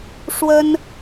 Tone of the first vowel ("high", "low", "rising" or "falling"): high